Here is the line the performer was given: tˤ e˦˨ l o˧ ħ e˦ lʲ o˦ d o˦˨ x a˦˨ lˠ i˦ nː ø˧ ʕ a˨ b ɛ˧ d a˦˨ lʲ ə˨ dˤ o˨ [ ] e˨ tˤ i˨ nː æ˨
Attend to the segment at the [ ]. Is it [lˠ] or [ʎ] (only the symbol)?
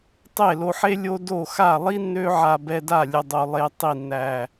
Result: lˠ